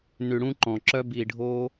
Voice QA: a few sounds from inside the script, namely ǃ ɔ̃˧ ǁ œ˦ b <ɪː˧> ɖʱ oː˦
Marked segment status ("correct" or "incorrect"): incorrect